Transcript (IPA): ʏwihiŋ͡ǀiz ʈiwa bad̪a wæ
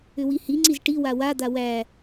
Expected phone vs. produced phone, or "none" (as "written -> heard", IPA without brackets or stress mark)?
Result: b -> w